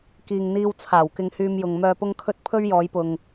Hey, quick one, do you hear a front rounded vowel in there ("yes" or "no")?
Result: yes